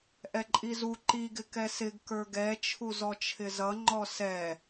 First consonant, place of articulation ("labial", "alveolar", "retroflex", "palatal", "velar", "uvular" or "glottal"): glottal